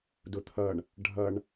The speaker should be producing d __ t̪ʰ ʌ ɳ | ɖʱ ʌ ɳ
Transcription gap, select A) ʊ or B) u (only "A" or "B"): A